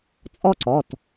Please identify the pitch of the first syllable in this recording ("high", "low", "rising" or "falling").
high